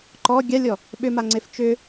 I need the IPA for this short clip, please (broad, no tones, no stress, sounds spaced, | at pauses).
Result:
ǃ ɔ ɡʲ a lʲ ɔ | ɓ ʏ m a ŋ͡ǀ e f t͡ʃ ʏ